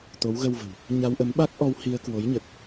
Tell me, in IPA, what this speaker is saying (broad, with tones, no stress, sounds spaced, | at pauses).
t̪ o˨˦ w ɣ ə˧ w v ə̤˨˩ w | ɲ a˧ w ʔ ə˨˦ m ɓ a˦˥ k̚ ʔ ɔ˧ w h i˧ ə̯ k w o˨˦ j ɲ ə˨˩ t̚